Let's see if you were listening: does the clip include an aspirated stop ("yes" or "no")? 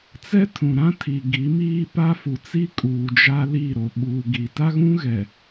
yes